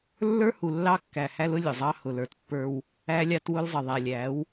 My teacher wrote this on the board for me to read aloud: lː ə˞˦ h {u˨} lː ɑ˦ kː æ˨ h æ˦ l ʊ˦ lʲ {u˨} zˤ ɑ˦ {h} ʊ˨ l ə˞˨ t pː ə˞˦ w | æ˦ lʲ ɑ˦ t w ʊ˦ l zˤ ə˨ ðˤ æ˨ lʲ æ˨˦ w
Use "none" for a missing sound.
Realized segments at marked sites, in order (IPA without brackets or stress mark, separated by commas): u˨, ʊ˨, h